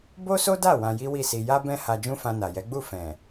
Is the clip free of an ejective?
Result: yes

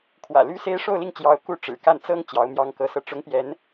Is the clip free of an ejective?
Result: yes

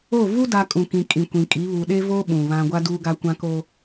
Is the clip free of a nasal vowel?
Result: no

